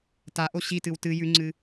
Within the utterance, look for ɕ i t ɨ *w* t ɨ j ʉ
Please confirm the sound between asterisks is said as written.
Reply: yes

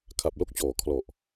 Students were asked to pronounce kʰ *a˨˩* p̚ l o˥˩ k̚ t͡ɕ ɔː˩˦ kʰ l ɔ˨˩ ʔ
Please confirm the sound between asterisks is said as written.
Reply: yes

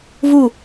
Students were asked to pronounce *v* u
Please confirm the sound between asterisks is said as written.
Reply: yes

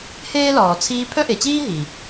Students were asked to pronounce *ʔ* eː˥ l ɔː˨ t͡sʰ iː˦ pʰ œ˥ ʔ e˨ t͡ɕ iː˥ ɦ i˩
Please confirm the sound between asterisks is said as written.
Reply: no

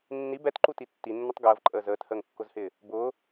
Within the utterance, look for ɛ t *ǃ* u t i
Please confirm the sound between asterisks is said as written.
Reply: yes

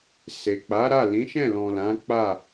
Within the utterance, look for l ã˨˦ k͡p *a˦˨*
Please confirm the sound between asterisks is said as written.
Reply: yes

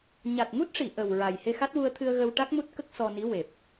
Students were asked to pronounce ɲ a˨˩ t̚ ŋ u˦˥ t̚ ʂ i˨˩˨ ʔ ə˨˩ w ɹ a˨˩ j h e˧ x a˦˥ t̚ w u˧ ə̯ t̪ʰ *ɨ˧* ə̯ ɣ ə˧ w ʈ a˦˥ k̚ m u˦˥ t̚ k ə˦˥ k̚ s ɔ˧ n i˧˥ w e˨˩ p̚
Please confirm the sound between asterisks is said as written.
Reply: yes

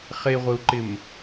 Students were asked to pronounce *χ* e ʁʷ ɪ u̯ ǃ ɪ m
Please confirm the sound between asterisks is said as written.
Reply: yes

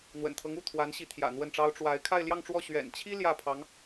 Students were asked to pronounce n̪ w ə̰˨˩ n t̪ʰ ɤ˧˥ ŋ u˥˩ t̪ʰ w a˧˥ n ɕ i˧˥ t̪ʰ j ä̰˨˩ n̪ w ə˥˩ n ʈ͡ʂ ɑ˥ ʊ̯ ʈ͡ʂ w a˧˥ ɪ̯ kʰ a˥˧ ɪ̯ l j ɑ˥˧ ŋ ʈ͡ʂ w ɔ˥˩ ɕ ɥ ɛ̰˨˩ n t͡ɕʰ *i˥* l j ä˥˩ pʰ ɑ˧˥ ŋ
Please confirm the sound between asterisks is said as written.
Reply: yes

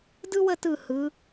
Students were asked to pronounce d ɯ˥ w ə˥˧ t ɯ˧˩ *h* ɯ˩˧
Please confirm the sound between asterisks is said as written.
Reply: yes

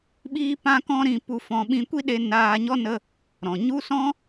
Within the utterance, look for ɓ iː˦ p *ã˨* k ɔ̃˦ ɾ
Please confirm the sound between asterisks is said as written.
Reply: no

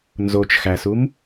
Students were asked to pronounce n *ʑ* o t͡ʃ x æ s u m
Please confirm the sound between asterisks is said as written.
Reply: no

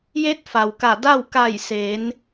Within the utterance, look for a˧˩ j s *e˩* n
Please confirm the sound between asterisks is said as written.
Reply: no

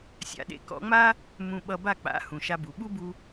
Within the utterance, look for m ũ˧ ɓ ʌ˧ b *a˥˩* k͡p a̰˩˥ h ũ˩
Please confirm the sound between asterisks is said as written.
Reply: yes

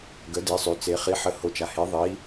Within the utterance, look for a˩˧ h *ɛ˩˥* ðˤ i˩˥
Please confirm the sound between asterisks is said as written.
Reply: no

